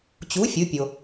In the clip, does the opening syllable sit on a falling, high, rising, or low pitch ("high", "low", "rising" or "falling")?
rising